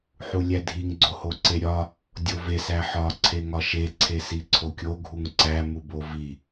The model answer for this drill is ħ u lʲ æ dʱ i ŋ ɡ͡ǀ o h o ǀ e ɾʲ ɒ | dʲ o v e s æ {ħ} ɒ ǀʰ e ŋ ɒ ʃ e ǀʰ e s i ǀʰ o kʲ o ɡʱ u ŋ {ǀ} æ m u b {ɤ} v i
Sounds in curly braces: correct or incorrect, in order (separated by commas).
correct, correct, incorrect